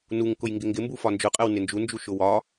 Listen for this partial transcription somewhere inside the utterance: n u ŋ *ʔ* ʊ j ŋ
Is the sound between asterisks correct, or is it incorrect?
incorrect